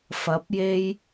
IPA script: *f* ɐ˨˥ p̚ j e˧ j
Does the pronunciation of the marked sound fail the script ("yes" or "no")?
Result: no